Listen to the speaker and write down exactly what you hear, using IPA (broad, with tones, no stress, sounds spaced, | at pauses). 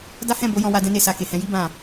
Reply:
d a˦ h ɛ̃˦˨ b o˨˦ j ɔ̃˧ w a˧ d ɛ̃˦ n e˦˨ s a˧ k e˨ h ɛ̃˧ j i˦ b ã˦˨